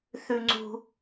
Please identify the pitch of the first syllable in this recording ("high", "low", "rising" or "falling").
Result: high